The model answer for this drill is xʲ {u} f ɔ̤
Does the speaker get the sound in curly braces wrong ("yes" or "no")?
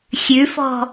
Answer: yes